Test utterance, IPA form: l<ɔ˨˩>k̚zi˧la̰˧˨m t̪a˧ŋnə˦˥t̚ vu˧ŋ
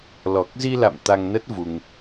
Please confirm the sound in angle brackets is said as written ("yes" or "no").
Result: yes